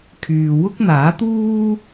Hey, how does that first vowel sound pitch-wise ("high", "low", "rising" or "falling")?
low